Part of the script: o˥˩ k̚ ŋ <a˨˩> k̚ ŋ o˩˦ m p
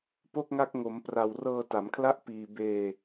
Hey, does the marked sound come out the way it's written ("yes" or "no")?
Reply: no